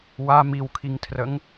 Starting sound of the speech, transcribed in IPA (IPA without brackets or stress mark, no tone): w